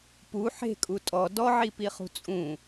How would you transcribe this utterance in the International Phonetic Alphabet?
pu ħe̤kʼu tʼɔ dɔʕipiχṳ t͡sʼũ

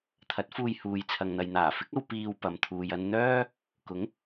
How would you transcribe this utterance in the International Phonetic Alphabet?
t̪ʰɐ˨˥t̚fuː˧j huː˨jt͡sʰɐ˨ŋn̪ɐ˨j n̪aː˨˩fɪ˨˥k̚ɐ˧w piː˧w pɐ˨mt̪ʰuː˨j ɐ˧n n̪œː˥ | kʊ˨˥ŋ

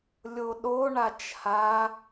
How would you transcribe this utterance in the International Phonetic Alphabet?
lʲoɗo ɳat͡ʃha

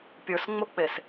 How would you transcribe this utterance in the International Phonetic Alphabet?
pʲə˞sŋ͡mok͡pes

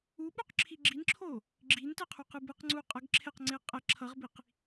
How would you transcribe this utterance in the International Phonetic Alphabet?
uɓuqǁʰi ɡ͡ǁinǁʰo | ɡ͡ǁintɛqʰuqɯ bɯqŋ͡ǀu qʼʌɡ ǁʰeqŋ͡ǀe qʼɛ ǁʰʌʁbiq

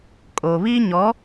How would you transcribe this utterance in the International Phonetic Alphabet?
kʼo˨βi˦ɲɔ˨˦

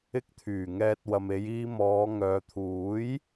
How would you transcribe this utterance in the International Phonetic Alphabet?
ɪ˧k̚t̪ʰyː˨˩ ŋɛː˨t̚wɐ˨me˨˧j iː˧mɔː˨˧ ŋœː˨t̪ʰuː˨˥j

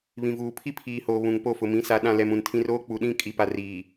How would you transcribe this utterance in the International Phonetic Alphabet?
βĩ˨vuː˨ pʰi˦pʰiː˨hoː˨ βũ˨ŋpo˦˨ fʊ˨mĩ˨˦sa˨˦ ɗã˨lɛ˨m ũ˨ntʰĩ˦r oː˦k͡pu˨ɗĩ˦˨ kʼi˨pa˨riː˨

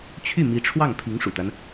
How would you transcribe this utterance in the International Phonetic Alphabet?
t͡ɕʰy˥˩mi˧˥ʈ͡ʂʰwɑ˥˩ŋ pʰi˧˥ŋʂṵ˨˩t̪a˦n

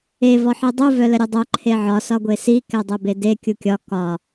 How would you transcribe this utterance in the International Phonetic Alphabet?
e vɔħidˤu vœləɾʲœdˤœ ǃʰeʕɒ sɒɡʷesi kɛdˤɛbede kʲukʲɒ kɒ

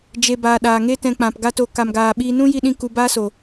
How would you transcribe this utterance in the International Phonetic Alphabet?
d͡ʒe˨baː˨ ɗaː˨ŋe˦tɛ̃˧ k͡pã˨pɡa˦to˧ ka˨mɡaː˨ ɓiː˧nũ˦ ji˦ɗĩ˦ ku˧baː˦so˨

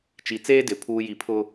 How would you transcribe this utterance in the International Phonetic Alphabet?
t͡ʃi˨t͡seː˦dɪ˨ pʰuː˨ji˨pʰʊ˦

